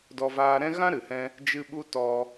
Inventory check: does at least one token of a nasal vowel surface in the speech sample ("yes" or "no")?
yes